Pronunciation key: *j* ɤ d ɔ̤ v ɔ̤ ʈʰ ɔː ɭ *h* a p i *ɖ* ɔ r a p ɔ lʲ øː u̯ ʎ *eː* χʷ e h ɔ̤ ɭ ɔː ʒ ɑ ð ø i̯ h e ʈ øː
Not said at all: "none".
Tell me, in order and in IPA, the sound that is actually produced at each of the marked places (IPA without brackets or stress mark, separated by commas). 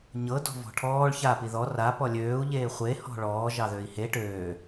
ɲ, ç, ð, eː